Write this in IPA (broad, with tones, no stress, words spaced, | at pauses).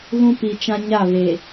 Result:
ɣũ˦pi˨t͡ʃã˦ ɲa˦˨βe˨